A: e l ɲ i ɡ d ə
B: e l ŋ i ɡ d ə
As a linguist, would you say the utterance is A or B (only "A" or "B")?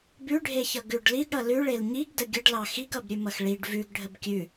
A